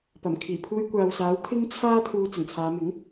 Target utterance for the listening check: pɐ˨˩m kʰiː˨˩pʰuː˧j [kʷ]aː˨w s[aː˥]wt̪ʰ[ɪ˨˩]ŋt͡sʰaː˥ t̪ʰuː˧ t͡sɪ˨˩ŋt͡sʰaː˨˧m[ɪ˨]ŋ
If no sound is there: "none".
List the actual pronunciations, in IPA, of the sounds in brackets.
kʷ, aː˨˥, ɪ˥, ɪ˨˥

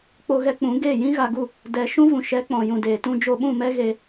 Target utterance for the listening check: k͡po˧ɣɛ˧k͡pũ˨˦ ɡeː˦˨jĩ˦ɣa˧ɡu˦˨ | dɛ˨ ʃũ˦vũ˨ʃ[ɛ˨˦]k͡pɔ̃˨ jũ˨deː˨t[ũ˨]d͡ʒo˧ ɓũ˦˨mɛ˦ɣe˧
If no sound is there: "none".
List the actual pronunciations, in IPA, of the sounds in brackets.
ɛ˨˦, ũ˧

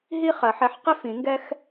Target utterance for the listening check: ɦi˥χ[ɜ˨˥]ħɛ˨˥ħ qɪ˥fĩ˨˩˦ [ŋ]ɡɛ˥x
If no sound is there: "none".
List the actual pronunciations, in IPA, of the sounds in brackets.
ɜ˨˩˦, ŋ

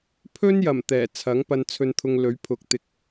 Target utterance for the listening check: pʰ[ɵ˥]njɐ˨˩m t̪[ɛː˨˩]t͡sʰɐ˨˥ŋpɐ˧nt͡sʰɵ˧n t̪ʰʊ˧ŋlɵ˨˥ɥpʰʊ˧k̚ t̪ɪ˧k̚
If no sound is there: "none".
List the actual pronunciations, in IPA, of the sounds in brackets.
ɵ˥, ɛː˨˩

